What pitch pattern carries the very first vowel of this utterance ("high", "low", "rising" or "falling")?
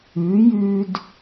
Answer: rising